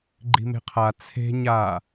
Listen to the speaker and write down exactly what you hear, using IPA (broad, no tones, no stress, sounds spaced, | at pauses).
ɡ͡ǃ i̤ m e̤ qʰ a t͡sʰ e̤ ɲ a